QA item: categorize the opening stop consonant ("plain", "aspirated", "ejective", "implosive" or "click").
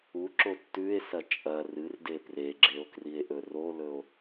click